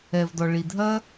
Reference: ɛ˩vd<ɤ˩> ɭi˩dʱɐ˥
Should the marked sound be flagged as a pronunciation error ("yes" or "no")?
yes